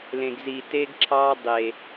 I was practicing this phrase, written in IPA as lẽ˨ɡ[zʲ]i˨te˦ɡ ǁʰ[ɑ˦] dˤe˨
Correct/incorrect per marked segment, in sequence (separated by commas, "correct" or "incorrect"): incorrect, correct